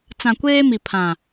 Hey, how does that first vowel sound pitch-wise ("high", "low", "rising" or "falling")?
low